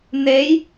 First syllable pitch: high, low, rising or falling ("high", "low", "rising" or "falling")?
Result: rising